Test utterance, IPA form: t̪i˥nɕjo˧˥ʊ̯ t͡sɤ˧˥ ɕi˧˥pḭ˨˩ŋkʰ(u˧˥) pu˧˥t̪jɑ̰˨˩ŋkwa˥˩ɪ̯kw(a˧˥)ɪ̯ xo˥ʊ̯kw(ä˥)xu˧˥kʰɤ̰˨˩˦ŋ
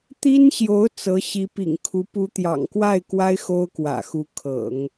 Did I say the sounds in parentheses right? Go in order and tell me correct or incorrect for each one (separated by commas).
correct, incorrect, incorrect